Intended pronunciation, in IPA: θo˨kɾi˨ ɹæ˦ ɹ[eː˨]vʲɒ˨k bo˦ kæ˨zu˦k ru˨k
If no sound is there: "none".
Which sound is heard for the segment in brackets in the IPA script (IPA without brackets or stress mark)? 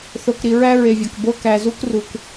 e˨